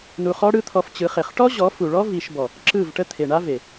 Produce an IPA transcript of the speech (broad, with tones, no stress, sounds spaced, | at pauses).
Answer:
n u˧ χ ɔ˦ ɽ ɯ˦ t̪ʰ ɔ˧ f t͡ɕ ɯ˨˦ χ e˨ χ ʈ ɔ˦ ʑ ɔ˨˦ f u˨ ɭ ɔ˦ v i˧ ʃ b ɔ˨ | ǁ ɯ˦˨ v ʈ ə˦ t̪ʰ e˨ ɳ a˦ v e˨